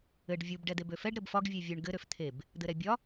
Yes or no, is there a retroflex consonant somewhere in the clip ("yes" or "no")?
yes